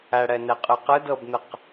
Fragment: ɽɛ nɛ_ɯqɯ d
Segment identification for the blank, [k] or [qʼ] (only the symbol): qʼ